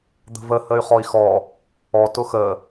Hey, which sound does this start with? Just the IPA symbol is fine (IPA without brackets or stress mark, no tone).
d̪